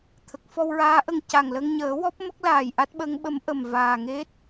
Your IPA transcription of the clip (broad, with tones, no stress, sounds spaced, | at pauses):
t̪ʰ ə˨˩ k̚ f ɔ˧ w ɹ aː˧˥ ʔ ə˨˩ ŋ c a˨˩ ŋ l ə˧ ŋ ɲ əː˨˩˦ w ɔ˦˥ p̚ m ə˦˥ k̚ l aː˨˩ j ʔ a˦˥ t̚ ɓ ə˧˥ ŋ ɓ ə˧˥ m ʔ ə˨˩ m v aː˨˩ ŋ e˦˥ t̚